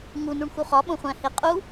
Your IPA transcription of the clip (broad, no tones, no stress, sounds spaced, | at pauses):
ŋ u n u ɳ x u χ ɒ ɓ õ χʷ æ̃ h e qʼ u